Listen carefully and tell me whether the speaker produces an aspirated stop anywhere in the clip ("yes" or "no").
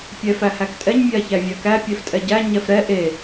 no